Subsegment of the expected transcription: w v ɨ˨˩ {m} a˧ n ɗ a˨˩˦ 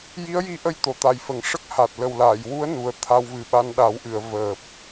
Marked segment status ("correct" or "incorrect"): incorrect